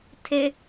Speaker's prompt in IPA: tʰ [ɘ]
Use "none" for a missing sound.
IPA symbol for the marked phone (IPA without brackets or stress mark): e